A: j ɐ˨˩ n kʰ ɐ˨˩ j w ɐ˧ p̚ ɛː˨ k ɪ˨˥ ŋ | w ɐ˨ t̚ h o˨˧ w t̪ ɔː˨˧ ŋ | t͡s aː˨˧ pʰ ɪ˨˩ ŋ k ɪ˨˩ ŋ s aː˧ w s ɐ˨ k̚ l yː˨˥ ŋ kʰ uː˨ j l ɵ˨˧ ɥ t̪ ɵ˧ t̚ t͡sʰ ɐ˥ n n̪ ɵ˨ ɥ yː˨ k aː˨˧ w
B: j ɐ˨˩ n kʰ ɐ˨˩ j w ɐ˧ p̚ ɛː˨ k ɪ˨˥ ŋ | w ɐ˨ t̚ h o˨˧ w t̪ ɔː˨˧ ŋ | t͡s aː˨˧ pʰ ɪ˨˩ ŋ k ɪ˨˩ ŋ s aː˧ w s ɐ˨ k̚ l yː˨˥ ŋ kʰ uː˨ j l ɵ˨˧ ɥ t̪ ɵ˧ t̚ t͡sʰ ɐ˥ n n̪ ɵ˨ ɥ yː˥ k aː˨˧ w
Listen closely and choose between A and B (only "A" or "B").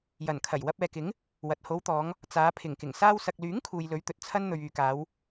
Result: A